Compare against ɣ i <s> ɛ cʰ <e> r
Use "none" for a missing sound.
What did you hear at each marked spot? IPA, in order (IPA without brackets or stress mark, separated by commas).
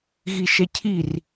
ʃ, i